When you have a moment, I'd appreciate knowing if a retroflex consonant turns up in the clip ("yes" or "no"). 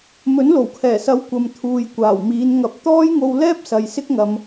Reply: no